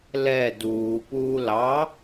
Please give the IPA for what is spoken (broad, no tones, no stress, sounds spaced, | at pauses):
l ɛ d uː p uː l ɑ